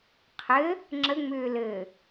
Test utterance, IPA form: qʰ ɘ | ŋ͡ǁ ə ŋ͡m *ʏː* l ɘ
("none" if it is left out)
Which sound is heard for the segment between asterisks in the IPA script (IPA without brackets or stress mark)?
ʏː